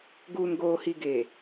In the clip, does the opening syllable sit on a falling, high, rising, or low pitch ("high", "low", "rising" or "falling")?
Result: low